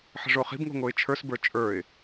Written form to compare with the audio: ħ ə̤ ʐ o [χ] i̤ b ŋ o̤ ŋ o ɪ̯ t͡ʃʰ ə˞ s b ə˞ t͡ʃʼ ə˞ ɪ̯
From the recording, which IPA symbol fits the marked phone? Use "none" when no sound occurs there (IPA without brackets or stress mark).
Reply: χ